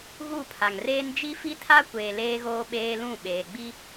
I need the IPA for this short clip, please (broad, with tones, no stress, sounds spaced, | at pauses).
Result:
ɣ u˦˨ pʰ a˨ ŋ r eː˦ n d͡ʒ i˦ f i˦ tʰ a˦ kʷ eː˨ l eː˦ ɣ oː˦ ɓ eː˦ l ũ˦˨ ɓ eː˨ ɡ͡b i˦